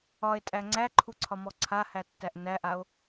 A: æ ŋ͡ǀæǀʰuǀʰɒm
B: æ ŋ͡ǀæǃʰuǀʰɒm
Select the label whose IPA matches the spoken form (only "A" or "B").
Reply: B